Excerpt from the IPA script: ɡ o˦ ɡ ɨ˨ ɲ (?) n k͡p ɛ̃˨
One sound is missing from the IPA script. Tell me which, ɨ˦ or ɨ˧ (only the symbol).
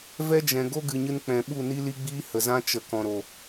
ɨ˧